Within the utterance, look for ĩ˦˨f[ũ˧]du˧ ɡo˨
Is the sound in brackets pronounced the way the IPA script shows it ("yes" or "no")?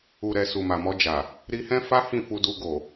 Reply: no